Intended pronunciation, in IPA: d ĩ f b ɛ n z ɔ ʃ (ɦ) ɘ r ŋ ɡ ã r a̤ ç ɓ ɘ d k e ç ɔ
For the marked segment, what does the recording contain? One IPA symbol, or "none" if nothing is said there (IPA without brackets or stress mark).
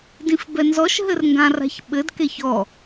ɦ